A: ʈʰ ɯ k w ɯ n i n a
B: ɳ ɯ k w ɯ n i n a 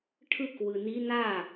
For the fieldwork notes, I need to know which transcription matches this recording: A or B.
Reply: A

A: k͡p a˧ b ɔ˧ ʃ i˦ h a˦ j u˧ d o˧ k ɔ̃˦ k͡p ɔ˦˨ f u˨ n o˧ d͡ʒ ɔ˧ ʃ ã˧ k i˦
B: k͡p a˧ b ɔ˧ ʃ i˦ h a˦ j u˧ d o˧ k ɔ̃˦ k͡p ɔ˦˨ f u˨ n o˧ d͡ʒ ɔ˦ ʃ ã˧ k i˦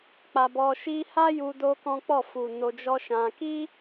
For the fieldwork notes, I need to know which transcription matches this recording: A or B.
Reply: B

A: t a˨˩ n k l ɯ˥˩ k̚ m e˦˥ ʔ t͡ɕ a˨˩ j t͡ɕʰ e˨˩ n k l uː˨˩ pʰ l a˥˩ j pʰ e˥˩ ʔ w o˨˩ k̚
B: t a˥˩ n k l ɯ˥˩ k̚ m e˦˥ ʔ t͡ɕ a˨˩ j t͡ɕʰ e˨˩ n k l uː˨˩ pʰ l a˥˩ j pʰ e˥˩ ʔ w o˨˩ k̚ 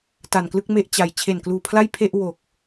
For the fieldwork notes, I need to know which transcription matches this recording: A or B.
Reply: A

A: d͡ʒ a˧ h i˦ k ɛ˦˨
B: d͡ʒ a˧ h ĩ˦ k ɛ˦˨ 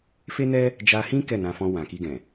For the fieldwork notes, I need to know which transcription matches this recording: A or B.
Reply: B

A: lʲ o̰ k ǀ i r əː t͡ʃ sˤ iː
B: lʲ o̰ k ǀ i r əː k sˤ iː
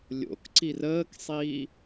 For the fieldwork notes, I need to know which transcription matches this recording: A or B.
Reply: B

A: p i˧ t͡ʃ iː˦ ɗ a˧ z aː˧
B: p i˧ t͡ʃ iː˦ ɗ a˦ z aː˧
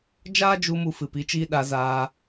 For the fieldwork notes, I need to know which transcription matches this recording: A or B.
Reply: A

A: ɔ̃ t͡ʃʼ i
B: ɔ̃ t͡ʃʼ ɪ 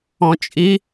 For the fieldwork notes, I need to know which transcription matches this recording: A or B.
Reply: A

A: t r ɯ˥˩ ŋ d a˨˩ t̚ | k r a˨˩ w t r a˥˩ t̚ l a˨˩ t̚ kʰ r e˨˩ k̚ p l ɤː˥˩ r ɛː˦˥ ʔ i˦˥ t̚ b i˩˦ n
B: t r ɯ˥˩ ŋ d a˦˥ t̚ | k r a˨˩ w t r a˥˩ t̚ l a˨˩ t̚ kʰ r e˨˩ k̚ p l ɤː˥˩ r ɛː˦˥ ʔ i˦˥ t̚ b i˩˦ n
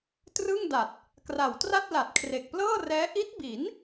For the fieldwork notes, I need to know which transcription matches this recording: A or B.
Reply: A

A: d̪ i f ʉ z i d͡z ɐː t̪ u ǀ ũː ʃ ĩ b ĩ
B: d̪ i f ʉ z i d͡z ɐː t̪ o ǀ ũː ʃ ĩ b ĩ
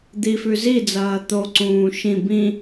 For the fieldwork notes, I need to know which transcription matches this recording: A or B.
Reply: B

